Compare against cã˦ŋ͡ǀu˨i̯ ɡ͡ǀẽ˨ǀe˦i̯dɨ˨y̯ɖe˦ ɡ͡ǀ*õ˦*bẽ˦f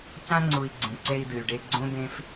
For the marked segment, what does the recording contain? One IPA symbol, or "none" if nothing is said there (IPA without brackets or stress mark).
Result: õ˦